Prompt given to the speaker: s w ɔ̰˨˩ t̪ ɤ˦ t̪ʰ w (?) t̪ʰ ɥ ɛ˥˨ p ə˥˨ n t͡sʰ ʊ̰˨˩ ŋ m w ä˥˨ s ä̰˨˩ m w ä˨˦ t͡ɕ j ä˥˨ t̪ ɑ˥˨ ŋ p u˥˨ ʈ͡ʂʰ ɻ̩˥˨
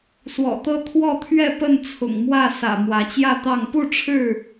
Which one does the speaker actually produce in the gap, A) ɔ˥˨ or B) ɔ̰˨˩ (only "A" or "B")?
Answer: A